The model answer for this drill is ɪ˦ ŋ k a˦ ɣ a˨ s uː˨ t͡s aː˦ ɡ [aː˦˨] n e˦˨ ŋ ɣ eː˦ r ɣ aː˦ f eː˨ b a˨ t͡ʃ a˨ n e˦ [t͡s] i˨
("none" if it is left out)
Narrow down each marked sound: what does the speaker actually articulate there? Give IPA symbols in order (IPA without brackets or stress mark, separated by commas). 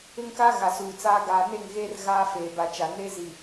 aː˨, z